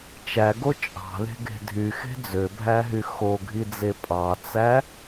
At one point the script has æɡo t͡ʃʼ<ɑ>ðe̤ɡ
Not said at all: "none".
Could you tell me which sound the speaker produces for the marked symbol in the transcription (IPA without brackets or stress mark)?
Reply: ɑ̤